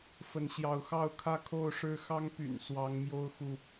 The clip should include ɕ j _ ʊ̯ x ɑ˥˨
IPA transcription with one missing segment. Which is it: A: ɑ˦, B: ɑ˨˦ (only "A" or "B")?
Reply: B